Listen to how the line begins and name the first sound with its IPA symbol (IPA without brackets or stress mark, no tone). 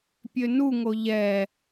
pʲ